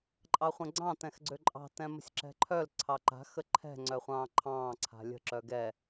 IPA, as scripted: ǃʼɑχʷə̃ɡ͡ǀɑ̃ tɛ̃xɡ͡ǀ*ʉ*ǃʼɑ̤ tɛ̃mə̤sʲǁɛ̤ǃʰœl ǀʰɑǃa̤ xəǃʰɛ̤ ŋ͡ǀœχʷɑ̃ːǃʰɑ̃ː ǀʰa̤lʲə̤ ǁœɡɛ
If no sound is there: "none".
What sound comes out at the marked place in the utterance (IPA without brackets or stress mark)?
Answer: ø